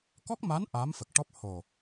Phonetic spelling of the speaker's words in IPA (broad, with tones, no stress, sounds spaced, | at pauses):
k ɔ˦˥ k̚ m a˧˥ n ʔ aː˧˥ m f ə˨˩ k̚ ʈ ɔ˦˥ p̚ h o˨˩